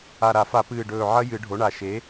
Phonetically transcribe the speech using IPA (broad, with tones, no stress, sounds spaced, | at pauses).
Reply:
a˨˩ ɾ a˨˩˦ f a˨˩˦ p ɨː˨˩ ɖ ɵː˨˩ ʕ ɐ˦˥ j ɨ˨˩˦ ɖʱ o˩˥ ɳ a˨˩ ʃ e˩˥